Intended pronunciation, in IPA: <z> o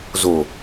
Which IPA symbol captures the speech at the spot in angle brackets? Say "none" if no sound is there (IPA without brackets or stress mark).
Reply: z